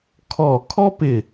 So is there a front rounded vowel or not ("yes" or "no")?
no